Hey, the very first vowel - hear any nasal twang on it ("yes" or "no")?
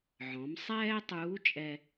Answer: yes